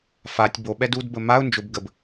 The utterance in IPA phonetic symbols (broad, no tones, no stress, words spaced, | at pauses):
fatʲ boɓɛd udbə maʊ̯ nd͡ʒʊb ɡəb